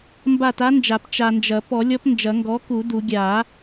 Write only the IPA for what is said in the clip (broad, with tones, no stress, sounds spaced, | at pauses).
m b a˦˨ t a˧˥ n d͡ʒ a˨˩˦ p t͡ʃ a˨ n d͡ʒ ɐ˨˩˦ p ɔ˨˩˦ lʲ ɔ˧˥ p n d͡ʒ ɐ˨˩˦ ŋ ɡ ɔ˩˥ k u˨˩˦ d u˨˩˦ ɡʲ a˨˩˦